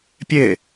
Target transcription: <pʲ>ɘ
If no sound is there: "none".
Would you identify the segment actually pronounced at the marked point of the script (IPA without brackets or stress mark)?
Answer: pʲ